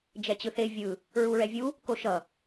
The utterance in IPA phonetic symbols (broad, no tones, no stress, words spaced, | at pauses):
d͡ʒɛt͡ɕɯθe vʲɯ | ɹuɹɛvʲu | koʃʌ